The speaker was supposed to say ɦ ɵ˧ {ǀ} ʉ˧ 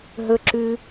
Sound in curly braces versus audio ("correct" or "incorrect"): incorrect